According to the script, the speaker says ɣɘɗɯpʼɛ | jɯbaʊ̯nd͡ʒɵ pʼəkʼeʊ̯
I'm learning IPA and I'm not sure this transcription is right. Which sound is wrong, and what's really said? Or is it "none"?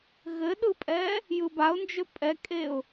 ə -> ɛ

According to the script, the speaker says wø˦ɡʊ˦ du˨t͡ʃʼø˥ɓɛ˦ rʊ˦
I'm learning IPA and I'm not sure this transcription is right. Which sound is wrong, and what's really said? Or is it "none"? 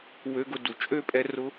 ɓ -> pʼ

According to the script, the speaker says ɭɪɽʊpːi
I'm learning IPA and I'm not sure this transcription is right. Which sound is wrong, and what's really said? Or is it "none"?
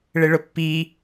ɽ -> ɭ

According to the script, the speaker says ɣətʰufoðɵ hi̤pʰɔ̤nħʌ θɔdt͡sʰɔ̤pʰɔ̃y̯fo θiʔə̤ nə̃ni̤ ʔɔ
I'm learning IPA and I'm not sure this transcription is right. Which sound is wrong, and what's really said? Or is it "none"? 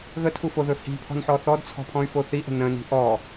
ʌ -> ɔ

